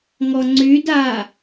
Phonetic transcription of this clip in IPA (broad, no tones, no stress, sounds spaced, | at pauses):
ŋ ɔ ŋ͡ǀ y d a